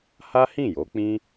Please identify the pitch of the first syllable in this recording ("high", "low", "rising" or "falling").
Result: high